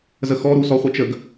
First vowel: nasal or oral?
oral